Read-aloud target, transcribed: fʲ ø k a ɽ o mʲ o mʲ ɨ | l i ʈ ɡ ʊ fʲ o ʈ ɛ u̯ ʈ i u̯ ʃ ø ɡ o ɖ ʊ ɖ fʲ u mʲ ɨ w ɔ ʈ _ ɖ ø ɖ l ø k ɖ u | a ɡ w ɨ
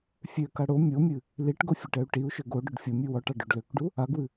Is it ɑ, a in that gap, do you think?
ɑ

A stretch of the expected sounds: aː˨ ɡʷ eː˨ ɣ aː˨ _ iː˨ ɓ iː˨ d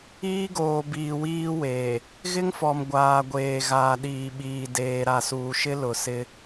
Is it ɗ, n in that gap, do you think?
ɗ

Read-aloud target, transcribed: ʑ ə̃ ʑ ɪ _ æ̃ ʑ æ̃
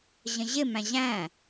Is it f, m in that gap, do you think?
m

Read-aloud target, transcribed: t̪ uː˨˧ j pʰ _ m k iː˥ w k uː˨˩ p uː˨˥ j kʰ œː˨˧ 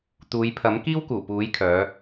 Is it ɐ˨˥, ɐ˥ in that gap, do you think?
ɐ˨˥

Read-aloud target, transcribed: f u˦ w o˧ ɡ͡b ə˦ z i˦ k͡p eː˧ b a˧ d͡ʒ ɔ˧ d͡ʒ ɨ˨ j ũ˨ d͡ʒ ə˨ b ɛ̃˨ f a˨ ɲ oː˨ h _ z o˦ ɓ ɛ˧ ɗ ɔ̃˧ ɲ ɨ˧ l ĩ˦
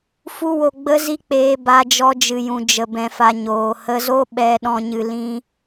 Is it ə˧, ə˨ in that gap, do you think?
ə˧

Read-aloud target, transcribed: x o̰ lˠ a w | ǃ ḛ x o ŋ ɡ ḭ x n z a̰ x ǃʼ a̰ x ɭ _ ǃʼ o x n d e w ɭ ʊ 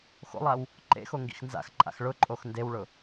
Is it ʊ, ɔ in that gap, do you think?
ʊ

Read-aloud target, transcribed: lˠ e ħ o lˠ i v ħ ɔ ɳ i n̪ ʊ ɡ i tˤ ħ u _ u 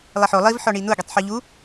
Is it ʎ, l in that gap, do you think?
ʎ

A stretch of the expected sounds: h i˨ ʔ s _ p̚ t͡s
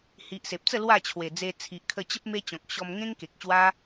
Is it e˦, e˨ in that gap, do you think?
e˨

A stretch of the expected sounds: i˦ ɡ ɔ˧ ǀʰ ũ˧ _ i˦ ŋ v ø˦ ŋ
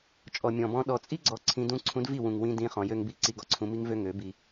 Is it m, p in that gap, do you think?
m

